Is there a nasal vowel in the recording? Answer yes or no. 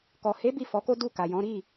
yes